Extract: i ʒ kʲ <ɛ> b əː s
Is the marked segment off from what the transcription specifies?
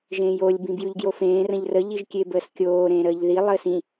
yes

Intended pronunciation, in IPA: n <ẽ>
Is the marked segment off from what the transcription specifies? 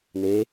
yes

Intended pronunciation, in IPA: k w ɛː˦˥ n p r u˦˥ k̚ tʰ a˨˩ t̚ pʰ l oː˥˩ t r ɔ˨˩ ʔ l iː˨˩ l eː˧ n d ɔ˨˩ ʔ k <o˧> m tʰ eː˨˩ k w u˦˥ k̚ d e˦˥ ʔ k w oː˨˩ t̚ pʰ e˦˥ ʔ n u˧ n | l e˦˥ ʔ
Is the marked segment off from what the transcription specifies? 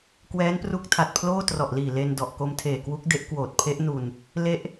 no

